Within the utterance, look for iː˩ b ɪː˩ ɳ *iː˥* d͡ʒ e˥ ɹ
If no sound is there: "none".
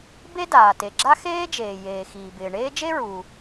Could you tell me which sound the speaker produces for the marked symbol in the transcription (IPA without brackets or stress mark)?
eː˥